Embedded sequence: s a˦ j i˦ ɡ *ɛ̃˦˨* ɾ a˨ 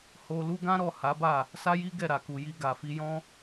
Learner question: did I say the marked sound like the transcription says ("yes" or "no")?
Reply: no